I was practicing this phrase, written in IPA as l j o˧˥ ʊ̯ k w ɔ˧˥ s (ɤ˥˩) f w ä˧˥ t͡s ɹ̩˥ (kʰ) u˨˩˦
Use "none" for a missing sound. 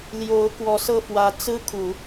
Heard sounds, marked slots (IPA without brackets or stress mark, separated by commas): ɤ˥˩, kʰ